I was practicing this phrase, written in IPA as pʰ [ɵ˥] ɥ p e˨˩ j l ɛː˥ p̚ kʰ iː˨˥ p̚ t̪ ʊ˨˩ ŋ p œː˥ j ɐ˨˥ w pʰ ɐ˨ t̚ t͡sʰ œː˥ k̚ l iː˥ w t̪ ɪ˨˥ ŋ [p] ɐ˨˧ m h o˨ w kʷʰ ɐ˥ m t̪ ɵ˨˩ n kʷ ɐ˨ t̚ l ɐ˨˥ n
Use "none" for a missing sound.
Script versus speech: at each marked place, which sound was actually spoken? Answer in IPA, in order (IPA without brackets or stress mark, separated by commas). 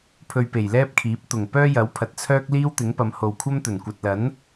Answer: ɵ˧, p